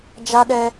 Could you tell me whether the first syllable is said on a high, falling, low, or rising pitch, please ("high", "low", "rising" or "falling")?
high